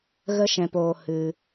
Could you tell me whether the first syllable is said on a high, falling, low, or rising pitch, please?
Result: high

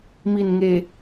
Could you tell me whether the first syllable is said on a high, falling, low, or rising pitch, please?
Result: low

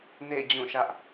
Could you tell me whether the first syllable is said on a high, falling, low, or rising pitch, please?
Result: falling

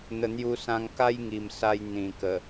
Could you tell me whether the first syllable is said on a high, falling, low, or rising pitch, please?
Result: low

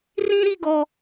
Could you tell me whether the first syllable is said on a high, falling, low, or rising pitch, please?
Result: high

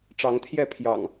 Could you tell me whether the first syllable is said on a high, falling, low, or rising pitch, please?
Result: rising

